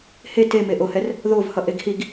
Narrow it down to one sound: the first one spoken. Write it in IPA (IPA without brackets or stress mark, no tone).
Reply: h